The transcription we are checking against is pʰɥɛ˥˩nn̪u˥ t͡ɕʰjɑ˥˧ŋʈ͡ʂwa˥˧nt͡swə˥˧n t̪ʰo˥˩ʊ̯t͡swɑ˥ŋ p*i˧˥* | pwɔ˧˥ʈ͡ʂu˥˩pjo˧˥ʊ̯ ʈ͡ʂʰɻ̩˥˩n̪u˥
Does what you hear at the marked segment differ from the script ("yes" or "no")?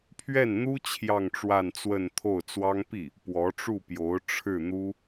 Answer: yes